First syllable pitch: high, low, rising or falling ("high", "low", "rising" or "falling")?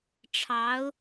rising